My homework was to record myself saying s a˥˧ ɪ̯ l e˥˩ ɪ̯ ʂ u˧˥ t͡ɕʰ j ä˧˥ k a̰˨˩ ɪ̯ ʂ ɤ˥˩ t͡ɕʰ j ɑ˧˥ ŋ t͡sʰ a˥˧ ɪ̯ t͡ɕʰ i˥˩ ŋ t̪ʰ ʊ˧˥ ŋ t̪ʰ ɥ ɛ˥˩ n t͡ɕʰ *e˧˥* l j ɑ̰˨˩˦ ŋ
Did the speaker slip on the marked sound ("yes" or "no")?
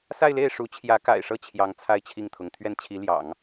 yes